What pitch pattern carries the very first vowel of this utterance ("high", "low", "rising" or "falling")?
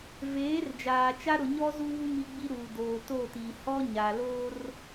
rising